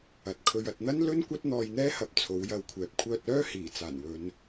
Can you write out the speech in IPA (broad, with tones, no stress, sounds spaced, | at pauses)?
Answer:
ɐ˨ t̚ kʰ ɵ˧ ɥ ɐ˨ t̚ n̪ ɐ˥ n l ɵ˥ n kʷ ɐ˥ t̚ n̪ ɔː˧ j n̪ ɛː˥ h ɐ˨˥ p̚ t͡sʰ o˨˥ w j ɐ˧ w kʷʰ ɛː˨ p̚ kʷʰ œː˧ t̚ œː˥ h iː˨˩ t͡s aː˨˩ n w ɵ˨˧ n